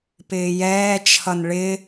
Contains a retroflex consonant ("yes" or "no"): yes